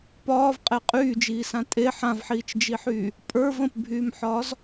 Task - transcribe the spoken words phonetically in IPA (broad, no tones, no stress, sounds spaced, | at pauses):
p ɒː v qʼ e qʼ yː d͡ʒ iː s ã tʼ e ħ ã v ħ iː t͡ʃ d͡ʒ i ħ yː | pʼ ə˞ v ə̃ p bʱ yː m ħ ɒː z